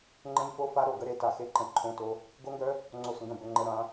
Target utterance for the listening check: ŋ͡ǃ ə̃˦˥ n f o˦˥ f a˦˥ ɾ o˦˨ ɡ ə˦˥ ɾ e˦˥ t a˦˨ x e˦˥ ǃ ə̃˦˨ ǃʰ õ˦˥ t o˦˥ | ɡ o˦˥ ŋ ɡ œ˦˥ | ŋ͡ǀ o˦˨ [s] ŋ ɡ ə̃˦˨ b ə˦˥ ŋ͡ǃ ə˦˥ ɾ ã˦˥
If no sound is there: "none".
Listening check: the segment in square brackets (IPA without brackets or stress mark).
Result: s